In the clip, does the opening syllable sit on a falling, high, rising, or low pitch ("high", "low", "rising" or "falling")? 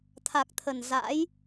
low